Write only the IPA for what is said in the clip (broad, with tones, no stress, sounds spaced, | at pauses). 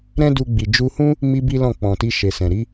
ɾ ɛ̃˦ d u˧ ɡ͡b i˨ d͡ʒ u˧ h ũ˦ | m i˧ b i˦ l ɔ̃˦˨ k͡p ɔ̃˨ t i˧ ʃ e˨ s ɛ̃˨ ɾ i˨˦